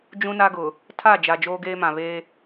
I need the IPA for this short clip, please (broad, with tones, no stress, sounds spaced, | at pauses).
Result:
d͡ʒ ũ˦ n a˦ ɡ ʊ˨ | tʰ a˦˨ d͡ʒ a˨ d͡ʒ oː˦ ɡ eː˦ m ã˨ β eː˦